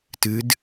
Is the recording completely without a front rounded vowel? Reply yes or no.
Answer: yes